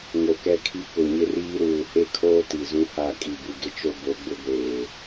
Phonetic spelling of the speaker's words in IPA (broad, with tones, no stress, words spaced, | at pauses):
ŋo˨kɛ˦kʰi˦ kʊ˨ɲɪ˦riː˦ ɾuː˨he˦kʰoː˦ ti˨zũ˦ha˦˨ kʼi˨bu˨ɡɪ˦t͡ʃo˦ bo˨˦ɡ͡bʊ˦ɡʷeː˨